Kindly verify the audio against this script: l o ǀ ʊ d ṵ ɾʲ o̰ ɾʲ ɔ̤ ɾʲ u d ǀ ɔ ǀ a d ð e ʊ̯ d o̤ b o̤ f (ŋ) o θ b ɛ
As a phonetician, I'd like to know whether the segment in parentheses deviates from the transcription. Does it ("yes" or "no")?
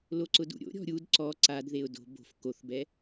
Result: yes